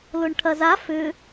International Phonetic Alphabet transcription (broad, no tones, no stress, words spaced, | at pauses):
lʊɳʈʰɐza fʏ